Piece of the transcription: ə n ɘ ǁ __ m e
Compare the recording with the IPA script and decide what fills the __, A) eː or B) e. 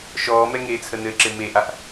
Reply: B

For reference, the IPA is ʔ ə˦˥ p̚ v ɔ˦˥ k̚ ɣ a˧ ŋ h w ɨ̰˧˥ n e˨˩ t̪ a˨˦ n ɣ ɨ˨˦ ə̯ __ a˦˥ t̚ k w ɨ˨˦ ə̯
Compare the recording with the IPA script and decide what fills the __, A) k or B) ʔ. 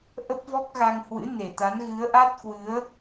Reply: B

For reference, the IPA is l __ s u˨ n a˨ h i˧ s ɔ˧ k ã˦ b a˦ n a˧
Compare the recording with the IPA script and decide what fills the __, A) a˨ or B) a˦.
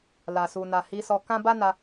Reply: A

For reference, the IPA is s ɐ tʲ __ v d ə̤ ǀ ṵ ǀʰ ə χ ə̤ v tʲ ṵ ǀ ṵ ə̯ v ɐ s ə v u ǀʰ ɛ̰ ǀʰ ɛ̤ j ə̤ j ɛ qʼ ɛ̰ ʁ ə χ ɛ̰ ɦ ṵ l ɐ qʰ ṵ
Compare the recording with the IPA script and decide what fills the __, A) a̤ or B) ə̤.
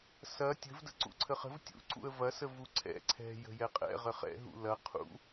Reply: B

